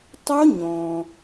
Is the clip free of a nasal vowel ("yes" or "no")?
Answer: no